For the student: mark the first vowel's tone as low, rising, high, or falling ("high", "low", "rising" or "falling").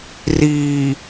low